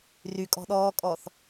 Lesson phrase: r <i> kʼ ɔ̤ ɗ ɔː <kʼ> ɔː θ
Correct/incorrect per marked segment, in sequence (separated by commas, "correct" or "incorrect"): incorrect, correct